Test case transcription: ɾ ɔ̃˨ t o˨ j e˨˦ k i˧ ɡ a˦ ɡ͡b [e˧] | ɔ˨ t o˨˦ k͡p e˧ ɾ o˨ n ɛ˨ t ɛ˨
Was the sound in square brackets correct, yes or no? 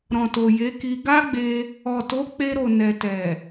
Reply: yes